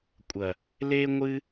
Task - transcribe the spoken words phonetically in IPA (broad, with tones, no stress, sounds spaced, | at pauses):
kʷʼ ɐ˨ | l eː˦ ŋʷ ɨ˦